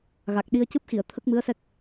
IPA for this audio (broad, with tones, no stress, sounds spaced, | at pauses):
ɣ a˨˩ k̚ ɗ i˧ ə̯ c ɨ˦˥ p̚ x i˨˩˨ ə̯ t̪ʰ ə˦˥ k̚ m ɨ˧˥ ə̯ s ɛ˦˥ k̚